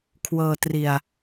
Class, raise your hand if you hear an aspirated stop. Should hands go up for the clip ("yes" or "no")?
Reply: yes